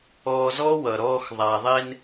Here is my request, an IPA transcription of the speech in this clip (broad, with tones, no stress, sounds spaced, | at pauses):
ɔː˧ z ɔ˦ w ʌ˨ ɾ ɔː˧ x ðˤ a˨ ðˤ e˧ n